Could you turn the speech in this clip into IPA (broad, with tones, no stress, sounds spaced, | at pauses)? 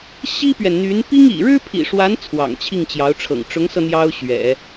ɕ i˥ p ɥ ɛ˨ n n̪ y˧˥ n p i˥ ŋ ḭ˨˩ ɻ ɻ̩˥ pʰ ḭ˨˩ ʂ w a˧˥ n t͡sʰ w ɑ̰˨˩ ŋ t͡ɕʰ i˥˩ ŋ t͡ɕ j ɑ˧˥ ʊ̯ ʈ͡ʂʰ ɤ̰˨˩ ŋ ʈ͡ʂ ʊ˧˥ ŋ s ɤ˧ n̪ j ɑ˥ ʊ̯ ɕ ɥ ɛ̰˨˩˦